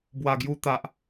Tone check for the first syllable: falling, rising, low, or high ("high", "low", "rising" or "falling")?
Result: low